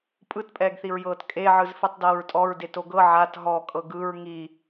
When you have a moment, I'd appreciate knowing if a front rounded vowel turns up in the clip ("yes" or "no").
no